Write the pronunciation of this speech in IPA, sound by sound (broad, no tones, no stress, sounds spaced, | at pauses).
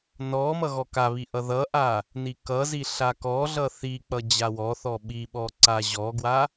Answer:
n ɔ m ʌ ɣ ɔ k a β i ʔ ʌ ð ʌ ʔ a | n i k ʌ z i ɬ a k ɔ ɮ ʌ θ i k͡p ʌ d͡ʑ a w ɔ θ ɔ ɓ i ɓ ɔ ǀ a ʑ ɔ ɡ w a